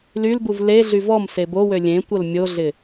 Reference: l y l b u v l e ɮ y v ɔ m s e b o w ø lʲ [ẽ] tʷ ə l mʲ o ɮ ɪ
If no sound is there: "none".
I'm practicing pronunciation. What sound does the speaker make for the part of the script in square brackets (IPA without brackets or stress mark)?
ẽ